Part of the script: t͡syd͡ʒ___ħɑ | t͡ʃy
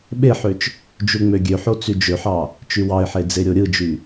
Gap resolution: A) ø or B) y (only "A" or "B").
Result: A